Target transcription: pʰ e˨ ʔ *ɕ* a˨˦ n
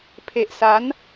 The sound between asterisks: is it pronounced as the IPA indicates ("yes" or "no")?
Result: no